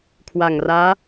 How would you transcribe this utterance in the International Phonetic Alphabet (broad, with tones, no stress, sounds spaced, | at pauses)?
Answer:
kʰ w a˨˩ ŋ r aː˦˥